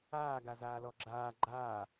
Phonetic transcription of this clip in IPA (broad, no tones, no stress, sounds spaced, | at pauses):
aː ɡ a z aː l ɔ ɡ͡ǁ aː ɡ͡ǃ aː